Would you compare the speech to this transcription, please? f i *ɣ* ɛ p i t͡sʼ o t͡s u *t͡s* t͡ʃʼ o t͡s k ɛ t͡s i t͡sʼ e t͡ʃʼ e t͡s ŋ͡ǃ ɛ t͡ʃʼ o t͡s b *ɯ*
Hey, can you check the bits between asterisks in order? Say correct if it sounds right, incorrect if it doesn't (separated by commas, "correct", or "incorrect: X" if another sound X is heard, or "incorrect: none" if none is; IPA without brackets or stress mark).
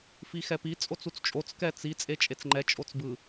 incorrect: x, correct, correct